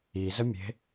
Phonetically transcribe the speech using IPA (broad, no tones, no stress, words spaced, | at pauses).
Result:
izəmʲe̤